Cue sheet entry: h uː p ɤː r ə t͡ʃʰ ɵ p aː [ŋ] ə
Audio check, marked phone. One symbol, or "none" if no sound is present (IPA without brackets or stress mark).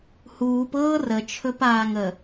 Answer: ŋ